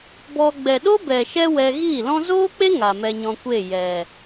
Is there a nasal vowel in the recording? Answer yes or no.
yes